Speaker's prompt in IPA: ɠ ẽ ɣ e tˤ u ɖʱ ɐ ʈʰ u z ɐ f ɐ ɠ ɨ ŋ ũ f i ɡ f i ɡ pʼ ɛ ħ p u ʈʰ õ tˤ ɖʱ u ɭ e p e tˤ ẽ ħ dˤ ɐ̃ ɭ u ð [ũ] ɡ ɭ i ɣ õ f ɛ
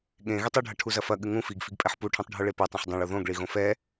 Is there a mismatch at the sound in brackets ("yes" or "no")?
yes